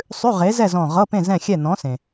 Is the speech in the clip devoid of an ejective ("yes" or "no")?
yes